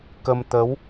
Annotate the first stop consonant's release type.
plain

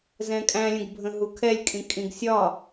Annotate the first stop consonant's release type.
ejective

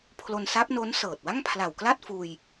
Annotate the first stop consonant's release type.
aspirated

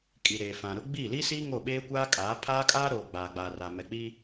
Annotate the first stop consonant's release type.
ejective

